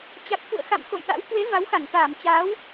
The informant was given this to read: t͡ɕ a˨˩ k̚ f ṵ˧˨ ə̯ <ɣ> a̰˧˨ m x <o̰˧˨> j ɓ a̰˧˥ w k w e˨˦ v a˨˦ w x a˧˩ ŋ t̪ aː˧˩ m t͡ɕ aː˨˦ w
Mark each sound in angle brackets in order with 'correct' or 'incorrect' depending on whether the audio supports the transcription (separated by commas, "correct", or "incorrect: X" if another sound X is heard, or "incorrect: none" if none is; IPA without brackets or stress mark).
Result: incorrect: x, correct